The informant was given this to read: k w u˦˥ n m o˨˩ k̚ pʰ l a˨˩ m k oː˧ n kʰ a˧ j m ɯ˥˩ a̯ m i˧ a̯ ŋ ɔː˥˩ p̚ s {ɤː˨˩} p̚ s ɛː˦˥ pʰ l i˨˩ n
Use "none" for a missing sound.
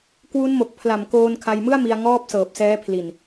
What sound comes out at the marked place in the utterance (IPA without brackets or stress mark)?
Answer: ɤː˨˩